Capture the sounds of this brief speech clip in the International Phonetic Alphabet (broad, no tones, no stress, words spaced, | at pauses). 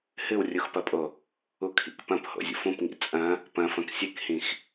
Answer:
hɨwrʲuxpɐpʼo | ukʰḭkpɐ̃p ho̰zʲṵfũpŋḭ t͡sʼɐ̃ | pɐ̃fɐ̃k sʲɨkhĩx